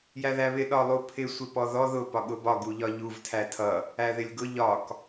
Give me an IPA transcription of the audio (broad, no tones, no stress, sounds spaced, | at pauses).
j æ ð æ β ɪ ɗ ɒ lˠ u pʰ ɪ sʷ ɪ p ɔ ð ɔ ð ʊ p ɒ ɠ ʊ b ɒ ɡ u ʎ ɒ ʎ u v tʰ æ tʰ ʌ | æ ð ɪ lʲ ɡ ʊ ʎ ɒ k